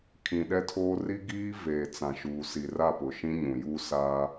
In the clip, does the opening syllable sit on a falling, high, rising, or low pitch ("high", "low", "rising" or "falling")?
low